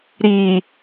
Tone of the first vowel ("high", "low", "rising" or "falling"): low